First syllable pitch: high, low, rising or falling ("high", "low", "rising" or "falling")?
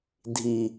low